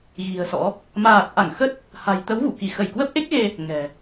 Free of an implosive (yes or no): yes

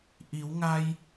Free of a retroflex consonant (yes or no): yes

